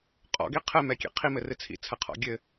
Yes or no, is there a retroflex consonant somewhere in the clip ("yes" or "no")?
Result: no